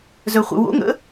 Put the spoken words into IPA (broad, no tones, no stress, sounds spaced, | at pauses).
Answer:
z œ χʷ ə̰ w o̰ ŋ ə̰